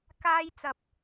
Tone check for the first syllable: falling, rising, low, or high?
high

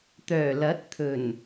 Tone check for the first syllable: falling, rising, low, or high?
low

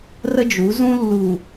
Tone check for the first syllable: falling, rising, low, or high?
high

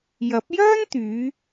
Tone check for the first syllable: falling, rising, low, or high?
rising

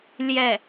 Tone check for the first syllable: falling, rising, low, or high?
falling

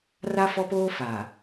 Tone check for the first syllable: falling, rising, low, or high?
high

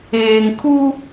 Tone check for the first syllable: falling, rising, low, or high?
low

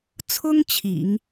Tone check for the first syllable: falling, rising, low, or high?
high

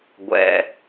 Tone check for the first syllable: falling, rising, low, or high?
low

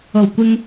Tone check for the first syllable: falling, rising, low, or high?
low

